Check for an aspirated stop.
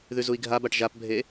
absent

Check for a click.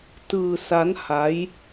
absent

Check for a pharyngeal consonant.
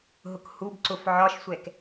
present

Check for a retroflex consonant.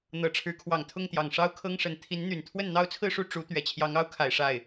present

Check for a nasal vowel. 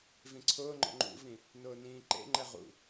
present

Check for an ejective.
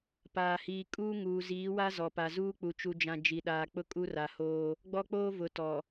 present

